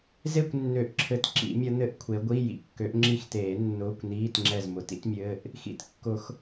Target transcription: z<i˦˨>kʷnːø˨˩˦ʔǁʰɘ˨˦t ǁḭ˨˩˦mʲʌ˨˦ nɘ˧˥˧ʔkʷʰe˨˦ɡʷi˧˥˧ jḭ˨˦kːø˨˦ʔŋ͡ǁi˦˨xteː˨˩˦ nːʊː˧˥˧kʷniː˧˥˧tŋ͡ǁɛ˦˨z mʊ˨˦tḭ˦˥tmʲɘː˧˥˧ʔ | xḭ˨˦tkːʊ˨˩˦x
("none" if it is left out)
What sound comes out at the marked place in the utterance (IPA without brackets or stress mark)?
e˦˨